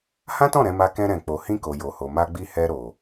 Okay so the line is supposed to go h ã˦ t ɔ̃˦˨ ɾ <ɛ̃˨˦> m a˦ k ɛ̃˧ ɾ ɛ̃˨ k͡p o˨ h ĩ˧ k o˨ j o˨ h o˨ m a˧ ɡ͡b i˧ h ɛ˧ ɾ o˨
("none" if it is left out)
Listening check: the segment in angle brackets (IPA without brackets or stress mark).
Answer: ɛ̃˨˦